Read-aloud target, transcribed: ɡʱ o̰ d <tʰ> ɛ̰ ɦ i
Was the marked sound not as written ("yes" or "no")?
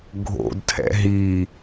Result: no